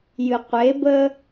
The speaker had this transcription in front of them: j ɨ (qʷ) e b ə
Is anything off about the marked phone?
no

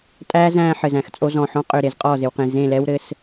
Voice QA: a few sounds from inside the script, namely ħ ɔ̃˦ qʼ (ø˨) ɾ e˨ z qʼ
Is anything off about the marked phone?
no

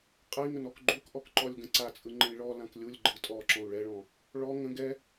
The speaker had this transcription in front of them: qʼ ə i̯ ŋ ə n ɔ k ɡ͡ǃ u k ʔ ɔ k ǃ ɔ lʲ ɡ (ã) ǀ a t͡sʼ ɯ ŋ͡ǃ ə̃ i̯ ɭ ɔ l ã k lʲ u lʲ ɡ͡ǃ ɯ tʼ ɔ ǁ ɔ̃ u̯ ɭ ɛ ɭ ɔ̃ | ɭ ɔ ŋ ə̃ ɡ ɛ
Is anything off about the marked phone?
yes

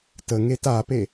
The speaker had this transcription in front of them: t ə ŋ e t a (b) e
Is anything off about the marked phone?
yes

